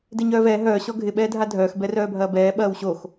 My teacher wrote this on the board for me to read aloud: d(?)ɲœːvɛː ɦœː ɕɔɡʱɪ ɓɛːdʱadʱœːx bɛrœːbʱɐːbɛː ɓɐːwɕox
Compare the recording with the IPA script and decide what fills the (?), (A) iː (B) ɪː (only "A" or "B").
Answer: B